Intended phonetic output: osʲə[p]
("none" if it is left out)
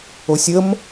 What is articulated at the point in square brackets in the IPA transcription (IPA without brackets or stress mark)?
m